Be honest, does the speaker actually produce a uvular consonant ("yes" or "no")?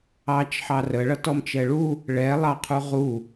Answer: yes